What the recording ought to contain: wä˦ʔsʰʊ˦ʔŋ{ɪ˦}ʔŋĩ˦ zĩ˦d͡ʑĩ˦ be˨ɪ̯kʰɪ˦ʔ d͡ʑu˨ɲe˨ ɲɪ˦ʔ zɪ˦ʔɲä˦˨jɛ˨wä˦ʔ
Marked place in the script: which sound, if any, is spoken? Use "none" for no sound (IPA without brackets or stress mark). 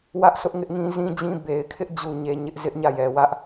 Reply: ɪ˦